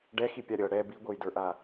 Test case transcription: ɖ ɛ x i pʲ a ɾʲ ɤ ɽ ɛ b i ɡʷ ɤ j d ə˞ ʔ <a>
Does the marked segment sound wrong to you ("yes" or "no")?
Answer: no